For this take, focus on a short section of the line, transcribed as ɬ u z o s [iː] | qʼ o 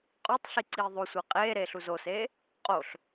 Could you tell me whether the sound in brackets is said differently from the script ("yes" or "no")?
yes